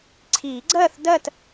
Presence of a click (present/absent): present